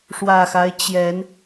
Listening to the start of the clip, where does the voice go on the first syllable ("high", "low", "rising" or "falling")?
low